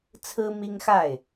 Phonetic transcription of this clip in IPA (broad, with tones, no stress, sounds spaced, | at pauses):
t͡sʰ ɹ̩˦ m i˦ ŋ x a˥˨ ɪ̯